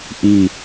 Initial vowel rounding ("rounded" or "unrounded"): unrounded